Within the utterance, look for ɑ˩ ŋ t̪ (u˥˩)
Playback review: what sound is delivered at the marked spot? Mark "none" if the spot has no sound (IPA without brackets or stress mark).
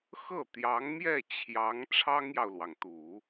u˨˩˦